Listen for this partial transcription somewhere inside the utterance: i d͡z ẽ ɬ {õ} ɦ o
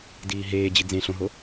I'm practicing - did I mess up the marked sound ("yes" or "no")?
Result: no